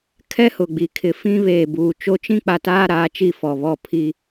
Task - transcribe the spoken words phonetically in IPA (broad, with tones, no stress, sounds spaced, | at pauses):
kʰ ɛ˦ h ʊ˨ ɡ͡b i˨ kʰ ɪ˨ f ĩ˦ β eː˨ b uː˨ t͡ʃ o˦ t͡ʃ ĩ˦ k͡p a˨ t aː˦ ɾ aː˨˦ t͡ʃ i˦˨ f ɔ˨ β ɔ˦˨ pʰ i˦